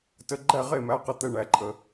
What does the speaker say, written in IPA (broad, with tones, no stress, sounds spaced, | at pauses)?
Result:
t ə˧˥˧ ɡ͡ǃ æ˥˨ ʁ e˥˨ m æ˧˥˧ q ə˥˨ t̪ ɛ˧˥˧ ɳ æ˧˩ ǃʼ ə˩